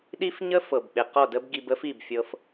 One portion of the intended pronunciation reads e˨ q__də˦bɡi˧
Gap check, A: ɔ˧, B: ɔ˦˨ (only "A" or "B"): B